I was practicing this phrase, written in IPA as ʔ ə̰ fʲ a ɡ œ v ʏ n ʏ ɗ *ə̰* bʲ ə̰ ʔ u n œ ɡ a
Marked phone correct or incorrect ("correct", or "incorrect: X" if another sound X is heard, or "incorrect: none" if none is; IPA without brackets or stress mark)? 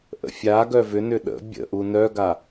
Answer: correct